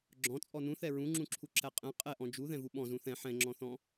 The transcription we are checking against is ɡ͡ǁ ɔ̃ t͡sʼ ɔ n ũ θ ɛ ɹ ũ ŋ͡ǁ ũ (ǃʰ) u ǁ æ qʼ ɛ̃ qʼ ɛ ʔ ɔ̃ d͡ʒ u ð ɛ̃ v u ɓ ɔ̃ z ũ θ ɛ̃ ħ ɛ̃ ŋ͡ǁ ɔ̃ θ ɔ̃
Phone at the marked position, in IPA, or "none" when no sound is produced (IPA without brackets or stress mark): ǁʰ